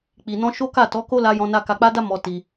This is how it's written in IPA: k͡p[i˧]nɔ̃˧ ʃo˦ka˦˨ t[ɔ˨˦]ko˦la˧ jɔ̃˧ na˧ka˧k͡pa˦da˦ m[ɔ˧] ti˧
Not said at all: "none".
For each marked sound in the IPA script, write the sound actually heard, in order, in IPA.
i˨, ɔ˨˦, ɔ˧

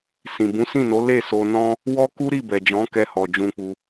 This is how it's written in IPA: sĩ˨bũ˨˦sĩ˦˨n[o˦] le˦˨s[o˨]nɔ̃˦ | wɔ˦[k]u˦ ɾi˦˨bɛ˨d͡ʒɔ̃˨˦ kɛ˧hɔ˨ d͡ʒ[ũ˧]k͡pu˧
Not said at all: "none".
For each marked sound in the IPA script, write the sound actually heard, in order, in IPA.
o˨˦, o˧, k, ũ˧

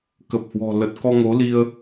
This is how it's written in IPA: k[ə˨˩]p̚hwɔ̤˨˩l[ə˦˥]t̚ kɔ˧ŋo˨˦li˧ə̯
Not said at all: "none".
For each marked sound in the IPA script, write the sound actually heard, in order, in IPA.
ə˨˩, ə˨˩

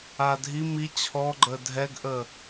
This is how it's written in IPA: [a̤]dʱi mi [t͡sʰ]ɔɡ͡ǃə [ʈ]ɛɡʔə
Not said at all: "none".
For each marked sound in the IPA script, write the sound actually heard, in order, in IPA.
a, t͡ɕʰ, dʱ

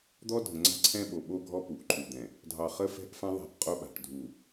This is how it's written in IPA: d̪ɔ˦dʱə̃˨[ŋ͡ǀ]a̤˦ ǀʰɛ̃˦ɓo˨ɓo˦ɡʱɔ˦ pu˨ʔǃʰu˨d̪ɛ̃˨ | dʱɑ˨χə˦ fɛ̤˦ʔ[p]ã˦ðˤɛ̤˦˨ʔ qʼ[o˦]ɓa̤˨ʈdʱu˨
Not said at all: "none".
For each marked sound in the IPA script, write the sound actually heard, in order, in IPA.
ŋ͡ǀ, f, o˦

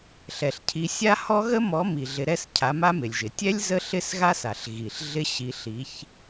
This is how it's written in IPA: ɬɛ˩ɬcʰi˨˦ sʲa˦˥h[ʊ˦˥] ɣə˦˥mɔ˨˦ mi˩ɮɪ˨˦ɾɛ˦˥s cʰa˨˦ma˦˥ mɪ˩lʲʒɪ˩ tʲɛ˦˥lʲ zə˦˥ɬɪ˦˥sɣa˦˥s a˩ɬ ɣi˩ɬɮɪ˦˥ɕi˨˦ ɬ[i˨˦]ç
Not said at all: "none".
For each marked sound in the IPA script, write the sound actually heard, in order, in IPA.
ɔ˦˥, i˨˦

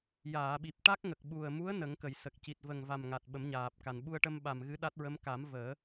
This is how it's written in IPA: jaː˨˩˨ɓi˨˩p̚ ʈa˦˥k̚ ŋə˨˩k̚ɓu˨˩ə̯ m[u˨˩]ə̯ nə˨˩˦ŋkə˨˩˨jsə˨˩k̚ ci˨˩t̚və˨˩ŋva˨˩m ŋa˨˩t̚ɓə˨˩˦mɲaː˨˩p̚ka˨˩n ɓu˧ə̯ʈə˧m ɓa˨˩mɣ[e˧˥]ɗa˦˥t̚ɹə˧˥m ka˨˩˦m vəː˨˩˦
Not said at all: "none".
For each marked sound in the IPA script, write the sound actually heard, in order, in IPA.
u˧˥, ɨ˧˥

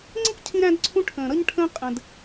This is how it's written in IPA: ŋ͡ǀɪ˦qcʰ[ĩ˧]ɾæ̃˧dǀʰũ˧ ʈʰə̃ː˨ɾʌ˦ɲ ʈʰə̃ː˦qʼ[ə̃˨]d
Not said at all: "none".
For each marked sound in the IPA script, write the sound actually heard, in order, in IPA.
ĩ˧, ə̃˨

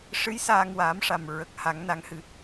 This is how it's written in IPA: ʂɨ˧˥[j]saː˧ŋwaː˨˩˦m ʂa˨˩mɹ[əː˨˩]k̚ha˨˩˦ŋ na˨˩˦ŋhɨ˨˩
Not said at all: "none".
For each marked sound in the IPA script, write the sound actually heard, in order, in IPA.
j, ə˨˩

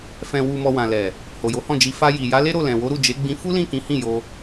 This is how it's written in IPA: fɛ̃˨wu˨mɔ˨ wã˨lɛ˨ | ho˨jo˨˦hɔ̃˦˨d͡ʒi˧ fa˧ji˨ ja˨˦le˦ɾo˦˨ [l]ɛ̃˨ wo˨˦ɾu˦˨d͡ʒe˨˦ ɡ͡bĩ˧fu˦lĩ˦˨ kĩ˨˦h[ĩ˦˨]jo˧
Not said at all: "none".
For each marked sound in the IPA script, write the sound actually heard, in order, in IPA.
l, ĩ˦˨

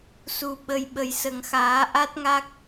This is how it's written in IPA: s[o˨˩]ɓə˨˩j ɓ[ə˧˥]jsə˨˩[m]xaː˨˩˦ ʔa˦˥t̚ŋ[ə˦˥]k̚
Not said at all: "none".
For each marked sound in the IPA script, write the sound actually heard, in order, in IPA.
u˨˩, ə˨˩, ŋ, a˦˥

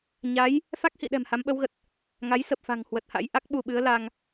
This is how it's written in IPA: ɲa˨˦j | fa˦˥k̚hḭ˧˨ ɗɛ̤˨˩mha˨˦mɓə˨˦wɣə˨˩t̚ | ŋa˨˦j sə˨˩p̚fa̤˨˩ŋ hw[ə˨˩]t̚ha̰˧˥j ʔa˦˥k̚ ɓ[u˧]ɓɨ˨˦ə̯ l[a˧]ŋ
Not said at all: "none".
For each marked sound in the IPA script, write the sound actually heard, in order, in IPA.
ə˨˩, u˧, a˧

